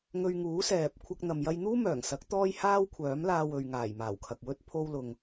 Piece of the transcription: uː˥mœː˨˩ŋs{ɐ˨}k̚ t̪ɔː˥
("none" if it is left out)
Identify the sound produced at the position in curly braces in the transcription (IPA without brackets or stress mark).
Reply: ɐ˨˥